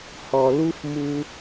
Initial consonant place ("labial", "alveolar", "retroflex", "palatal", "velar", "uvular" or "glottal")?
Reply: glottal